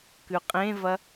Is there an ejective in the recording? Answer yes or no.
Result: yes